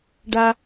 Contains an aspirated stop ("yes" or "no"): no